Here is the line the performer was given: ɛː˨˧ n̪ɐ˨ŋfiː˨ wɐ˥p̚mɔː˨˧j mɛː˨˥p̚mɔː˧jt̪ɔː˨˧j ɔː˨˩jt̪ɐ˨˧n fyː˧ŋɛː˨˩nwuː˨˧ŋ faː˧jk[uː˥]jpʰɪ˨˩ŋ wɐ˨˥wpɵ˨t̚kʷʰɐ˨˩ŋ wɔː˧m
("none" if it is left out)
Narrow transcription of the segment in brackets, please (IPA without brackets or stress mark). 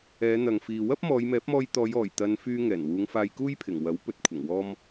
uː˥